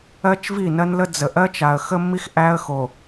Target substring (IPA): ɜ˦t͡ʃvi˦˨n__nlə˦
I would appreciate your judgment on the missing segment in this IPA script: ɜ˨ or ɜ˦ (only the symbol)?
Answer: ɜ˦